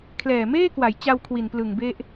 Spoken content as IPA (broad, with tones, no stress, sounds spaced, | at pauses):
kʰ l ɛː˨˩ m eː˥˩ k w a˩˦ j t͡ɕ a˧ w kʰ w i˨˩ n p l ɯ˨˩ ŋ b e˦˥ ʔ